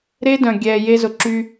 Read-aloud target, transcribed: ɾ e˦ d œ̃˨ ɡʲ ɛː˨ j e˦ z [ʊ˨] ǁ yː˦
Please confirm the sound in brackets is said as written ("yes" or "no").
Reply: yes